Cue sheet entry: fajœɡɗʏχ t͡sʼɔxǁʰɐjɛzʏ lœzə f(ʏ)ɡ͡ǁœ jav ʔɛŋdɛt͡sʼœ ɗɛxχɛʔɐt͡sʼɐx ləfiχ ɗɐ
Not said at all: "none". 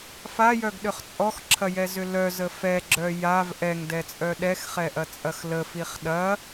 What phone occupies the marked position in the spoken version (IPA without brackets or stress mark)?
ɛ